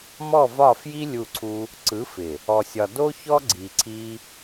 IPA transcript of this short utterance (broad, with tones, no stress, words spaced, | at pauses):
mɔ˦˨vɒ˦˨fji˦ lʲu˦˨ǀʰu˦ | ǀɯ˨˦fɪ˨ | ɔ˧sʲɒ˧ do˦çɔ˦ ɡ͡ǀi˨ ǀʰi˦